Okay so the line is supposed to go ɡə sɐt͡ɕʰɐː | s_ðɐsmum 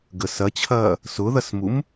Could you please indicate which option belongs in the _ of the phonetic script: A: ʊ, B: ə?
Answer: A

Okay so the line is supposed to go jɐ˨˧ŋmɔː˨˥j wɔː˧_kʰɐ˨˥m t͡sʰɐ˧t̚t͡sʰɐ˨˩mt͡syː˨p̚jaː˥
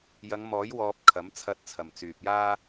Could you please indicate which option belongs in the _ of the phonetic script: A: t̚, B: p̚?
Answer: B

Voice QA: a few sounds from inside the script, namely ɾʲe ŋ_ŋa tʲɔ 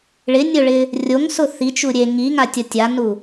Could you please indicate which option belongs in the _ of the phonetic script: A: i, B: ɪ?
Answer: A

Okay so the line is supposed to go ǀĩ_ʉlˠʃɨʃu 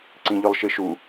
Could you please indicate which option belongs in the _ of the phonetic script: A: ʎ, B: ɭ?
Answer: A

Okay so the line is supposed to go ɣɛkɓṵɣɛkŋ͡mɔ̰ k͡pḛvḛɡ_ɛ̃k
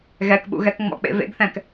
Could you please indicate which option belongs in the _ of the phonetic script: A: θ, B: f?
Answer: A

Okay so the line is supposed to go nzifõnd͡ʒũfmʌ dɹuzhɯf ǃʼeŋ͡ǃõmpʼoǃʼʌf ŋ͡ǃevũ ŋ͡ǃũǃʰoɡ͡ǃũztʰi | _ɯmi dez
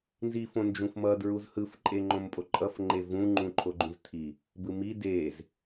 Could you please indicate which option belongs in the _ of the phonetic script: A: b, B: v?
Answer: A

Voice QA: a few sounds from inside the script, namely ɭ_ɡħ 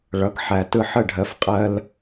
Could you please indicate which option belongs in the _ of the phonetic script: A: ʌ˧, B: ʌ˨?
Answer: B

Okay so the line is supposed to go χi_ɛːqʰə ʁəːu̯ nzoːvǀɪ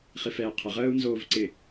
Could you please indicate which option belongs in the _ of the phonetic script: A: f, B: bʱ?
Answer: A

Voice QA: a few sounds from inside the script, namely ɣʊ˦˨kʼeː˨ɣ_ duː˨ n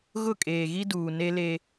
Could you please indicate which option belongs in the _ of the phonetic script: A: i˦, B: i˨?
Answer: A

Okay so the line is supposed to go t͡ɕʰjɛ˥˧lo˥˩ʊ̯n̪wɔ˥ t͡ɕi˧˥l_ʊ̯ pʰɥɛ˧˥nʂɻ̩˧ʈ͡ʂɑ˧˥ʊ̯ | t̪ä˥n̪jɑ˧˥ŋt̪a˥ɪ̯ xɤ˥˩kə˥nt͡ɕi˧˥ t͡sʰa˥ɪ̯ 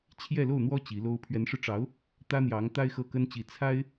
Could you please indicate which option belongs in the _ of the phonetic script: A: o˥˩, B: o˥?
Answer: B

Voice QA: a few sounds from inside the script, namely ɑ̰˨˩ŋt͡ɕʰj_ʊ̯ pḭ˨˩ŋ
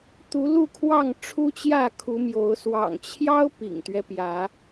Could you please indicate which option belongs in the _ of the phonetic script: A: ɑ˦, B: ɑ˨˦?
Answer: A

